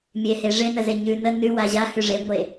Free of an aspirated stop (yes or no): yes